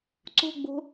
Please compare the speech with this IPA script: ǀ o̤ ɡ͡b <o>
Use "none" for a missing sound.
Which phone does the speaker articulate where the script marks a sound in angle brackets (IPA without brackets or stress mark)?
o̤